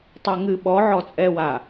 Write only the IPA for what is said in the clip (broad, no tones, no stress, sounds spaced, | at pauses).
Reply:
tˤ a ŋ ɨ ɓ ɔ ʕ ɔ t͡sʼ ɛ w a